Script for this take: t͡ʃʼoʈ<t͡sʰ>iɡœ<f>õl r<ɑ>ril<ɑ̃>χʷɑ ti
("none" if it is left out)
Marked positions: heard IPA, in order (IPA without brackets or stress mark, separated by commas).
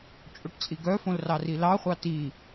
t͡sʼ, f, ɑ, ɑ